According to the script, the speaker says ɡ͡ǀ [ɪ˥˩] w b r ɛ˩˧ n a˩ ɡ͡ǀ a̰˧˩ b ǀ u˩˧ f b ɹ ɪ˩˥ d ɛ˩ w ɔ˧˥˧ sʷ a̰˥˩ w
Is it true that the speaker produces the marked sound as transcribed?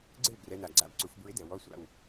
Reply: yes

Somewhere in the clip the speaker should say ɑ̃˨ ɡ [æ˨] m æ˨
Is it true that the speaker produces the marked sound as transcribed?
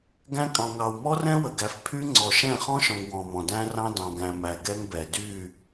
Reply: no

